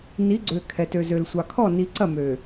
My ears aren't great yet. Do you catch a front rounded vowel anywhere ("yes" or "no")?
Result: yes